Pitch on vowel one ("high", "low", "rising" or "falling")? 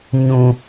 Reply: high